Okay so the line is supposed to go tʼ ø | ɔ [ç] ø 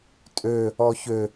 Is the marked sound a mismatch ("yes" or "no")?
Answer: no